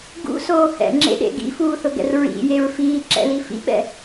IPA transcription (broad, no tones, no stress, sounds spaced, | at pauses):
ɡ ṵ s oː h ɛ̰ ŋ͡ǁ ḛ ɗ ḛ ɡ ḭ f uː θ ʊ ɡ ɛ̰ r ɹ ḭ j e ɹ f iː ǁ ɛ̰ l i f ḭ ɓ ɛ̰